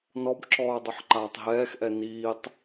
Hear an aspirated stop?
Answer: no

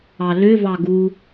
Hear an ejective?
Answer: no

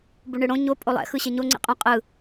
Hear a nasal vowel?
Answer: yes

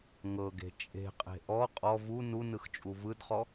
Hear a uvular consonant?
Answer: yes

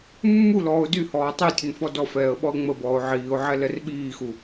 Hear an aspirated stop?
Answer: no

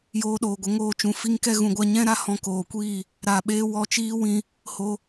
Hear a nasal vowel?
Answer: yes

